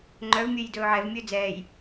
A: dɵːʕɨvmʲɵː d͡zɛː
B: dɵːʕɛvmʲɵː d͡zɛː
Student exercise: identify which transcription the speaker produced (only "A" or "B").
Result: B